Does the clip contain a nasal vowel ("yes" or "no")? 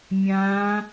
yes